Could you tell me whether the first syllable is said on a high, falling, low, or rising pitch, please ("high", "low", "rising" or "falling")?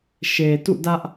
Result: low